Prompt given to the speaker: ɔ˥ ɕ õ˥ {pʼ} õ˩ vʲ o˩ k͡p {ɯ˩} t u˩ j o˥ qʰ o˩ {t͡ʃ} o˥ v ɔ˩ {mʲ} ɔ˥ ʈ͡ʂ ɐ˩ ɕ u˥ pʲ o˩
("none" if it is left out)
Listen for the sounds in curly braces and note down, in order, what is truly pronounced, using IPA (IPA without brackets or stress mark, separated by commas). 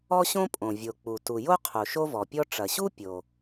pʼ, u˩, ʃ, pʲ